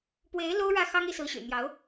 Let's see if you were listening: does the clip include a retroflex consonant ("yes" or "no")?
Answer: yes